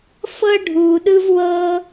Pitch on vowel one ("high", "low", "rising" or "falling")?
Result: high